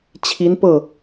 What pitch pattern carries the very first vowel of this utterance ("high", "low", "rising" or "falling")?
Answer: rising